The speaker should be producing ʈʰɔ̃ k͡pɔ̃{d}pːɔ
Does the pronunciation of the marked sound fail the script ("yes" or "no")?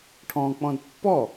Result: no